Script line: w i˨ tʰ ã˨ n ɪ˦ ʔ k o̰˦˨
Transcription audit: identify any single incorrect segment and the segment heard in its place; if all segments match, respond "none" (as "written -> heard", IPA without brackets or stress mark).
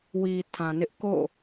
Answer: none